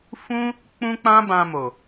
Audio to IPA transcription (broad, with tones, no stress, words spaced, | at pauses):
fũ˦ | k͡pũ˦k͡pã˦bã˧mo˨